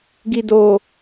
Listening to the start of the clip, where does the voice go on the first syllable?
low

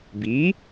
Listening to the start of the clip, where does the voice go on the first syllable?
rising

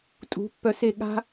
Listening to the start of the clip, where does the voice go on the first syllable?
rising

